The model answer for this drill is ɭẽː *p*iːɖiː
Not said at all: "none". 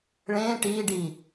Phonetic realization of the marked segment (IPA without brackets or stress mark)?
ʈ